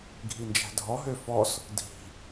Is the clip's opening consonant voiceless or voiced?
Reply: voiced